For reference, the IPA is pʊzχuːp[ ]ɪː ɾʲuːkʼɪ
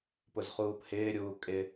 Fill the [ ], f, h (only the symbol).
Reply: h